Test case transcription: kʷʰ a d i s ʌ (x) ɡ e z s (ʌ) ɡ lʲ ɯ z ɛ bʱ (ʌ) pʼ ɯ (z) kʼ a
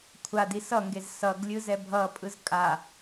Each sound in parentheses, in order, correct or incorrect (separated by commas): incorrect, correct, correct, correct